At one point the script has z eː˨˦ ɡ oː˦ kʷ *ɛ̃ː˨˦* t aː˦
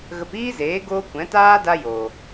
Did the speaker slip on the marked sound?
yes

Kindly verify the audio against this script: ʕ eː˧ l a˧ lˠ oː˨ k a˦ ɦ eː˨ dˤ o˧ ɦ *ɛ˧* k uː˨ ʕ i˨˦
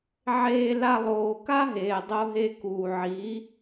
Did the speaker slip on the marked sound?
yes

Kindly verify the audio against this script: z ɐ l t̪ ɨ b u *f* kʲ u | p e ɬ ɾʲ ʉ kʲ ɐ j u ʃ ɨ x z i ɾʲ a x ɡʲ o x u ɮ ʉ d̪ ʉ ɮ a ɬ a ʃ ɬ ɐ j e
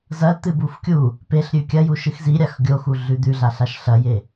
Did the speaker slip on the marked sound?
no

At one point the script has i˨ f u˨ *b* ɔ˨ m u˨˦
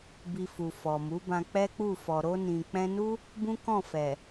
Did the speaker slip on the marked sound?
yes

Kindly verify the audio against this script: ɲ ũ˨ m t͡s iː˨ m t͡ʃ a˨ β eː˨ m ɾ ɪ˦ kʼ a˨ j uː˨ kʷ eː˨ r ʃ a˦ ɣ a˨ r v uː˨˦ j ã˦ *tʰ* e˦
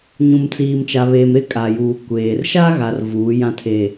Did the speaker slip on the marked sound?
no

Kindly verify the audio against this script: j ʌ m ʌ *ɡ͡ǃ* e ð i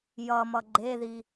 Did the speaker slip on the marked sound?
no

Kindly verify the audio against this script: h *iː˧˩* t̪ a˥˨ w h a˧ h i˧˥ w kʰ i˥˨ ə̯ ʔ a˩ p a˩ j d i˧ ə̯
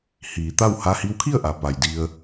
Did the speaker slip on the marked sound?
yes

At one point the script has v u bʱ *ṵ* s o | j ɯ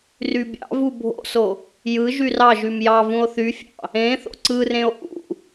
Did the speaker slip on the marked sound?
yes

